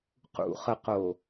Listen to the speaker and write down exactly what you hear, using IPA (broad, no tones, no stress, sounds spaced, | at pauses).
q ṵ χ ə q o